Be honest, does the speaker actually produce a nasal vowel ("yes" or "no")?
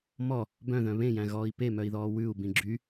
yes